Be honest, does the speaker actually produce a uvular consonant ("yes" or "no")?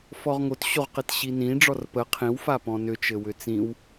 yes